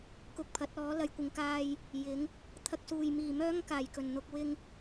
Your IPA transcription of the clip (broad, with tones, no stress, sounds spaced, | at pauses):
k ʊ˧ k̚ pʰ ɐ˨˥ t̚ ɔː˨˥ l ɐ˨˧ j kʷ ɪ˨˧ ŋ k aː˧ j | j ɪ˨˥ ŋ | t̪ʰ ɐ˧ k̚ s uː˨˩ j m iː˨˩ m œː˥ ŋ k aː˨˩ j k ɵ˨˩ n n̪ ʊ˧ k̚ w ɪ˧ ŋ